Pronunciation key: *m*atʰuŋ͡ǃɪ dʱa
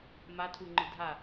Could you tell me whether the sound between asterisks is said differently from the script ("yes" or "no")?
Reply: no